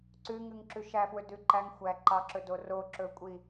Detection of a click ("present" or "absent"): present